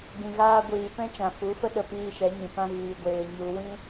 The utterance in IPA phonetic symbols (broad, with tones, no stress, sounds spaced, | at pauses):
ɡ͡b ĩ˨ ɣ aː˧ ɡʷ iː˨ p ɛ̃˦ t͡ʃ ã˨ f u˨˦ f ə˦ ɗ ə˧ p iː˧ ʃ ɛ˨˦ ɲ ĩ˨ p ã˦ ɣ iː˧ ɡʷ eː˧ ɲ u˧ w ĩ˦